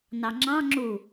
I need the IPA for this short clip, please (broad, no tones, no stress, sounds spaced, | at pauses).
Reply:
n ɑ ŋ͡ǁ ɑ̃ ŋ͡ǁ u